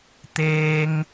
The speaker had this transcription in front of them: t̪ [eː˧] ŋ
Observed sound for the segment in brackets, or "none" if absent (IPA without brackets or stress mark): eː˧